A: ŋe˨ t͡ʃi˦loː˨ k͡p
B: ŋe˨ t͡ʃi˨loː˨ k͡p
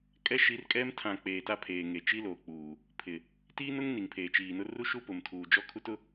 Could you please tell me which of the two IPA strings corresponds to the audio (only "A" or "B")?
A